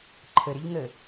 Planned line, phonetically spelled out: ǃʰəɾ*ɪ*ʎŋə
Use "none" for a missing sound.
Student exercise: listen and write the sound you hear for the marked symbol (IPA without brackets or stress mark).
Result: ɪ